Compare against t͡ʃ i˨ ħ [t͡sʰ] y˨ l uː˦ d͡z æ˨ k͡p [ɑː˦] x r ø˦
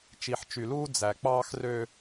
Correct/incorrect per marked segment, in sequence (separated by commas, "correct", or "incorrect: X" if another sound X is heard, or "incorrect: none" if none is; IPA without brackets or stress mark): incorrect: t͡ʃ, correct